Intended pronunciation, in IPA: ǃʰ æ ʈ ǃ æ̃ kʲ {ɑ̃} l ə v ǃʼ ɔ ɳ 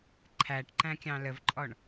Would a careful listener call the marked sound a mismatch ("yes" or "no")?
no